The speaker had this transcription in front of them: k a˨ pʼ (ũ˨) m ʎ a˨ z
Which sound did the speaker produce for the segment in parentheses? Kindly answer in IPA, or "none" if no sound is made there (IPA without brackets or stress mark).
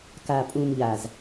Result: ũ˨